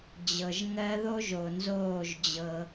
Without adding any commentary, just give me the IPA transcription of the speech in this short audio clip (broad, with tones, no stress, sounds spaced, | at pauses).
d͡ʑ ɤ˨ ʒ ŋ ɜ˧ ð o˦ ʒ o˨ n z oː˦˨ ʒ d͡ʑ ɤ˧